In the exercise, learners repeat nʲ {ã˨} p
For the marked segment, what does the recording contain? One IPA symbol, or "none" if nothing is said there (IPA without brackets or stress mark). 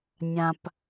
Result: ã˨